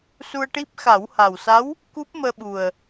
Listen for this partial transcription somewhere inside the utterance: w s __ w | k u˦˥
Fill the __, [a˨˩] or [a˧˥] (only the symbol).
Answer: a˧˥